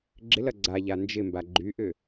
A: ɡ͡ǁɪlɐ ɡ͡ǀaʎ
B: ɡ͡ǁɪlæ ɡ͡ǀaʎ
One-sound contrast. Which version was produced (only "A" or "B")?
A